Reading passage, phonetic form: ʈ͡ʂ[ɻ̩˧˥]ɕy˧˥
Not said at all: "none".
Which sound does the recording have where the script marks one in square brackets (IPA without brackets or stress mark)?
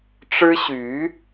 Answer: ɻ̩˥